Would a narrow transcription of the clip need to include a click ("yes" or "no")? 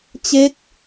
no